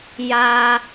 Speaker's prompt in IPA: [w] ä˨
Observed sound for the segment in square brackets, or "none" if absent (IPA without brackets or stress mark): j